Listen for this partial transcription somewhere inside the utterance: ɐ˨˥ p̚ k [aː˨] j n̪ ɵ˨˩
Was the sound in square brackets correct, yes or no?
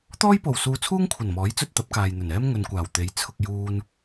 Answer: yes